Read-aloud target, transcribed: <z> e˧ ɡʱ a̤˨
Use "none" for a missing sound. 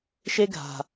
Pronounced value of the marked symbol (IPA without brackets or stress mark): ʃ